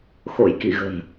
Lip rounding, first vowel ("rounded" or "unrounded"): rounded